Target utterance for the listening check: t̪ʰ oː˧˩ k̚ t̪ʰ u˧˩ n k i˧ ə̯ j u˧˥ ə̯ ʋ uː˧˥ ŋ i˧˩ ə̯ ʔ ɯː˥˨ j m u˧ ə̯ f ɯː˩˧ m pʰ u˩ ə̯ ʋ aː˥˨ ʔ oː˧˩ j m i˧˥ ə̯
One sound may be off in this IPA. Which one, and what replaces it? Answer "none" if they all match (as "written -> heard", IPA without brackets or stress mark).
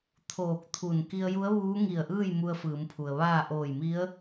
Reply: none